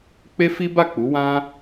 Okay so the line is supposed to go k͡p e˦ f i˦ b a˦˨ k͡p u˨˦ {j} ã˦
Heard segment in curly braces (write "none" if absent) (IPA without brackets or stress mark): w